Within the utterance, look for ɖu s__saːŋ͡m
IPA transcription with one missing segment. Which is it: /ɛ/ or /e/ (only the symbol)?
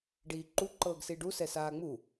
ɛ